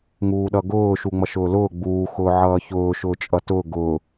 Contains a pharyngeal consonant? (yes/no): yes